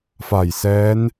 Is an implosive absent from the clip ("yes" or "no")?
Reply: yes